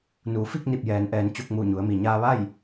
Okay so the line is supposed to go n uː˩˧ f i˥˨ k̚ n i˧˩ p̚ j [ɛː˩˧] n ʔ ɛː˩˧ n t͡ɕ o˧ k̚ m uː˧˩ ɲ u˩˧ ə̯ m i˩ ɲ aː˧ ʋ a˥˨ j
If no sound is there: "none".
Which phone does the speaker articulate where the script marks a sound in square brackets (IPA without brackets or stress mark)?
ɛː˩˧